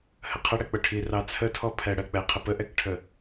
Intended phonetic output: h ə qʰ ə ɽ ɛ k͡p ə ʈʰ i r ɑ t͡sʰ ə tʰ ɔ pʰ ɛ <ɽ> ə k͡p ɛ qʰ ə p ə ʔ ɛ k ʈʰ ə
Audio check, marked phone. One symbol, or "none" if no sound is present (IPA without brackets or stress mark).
ɽ